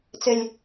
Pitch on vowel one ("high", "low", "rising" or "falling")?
high